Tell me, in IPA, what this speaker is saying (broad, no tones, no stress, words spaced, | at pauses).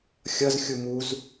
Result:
xʲʌzxʲu muz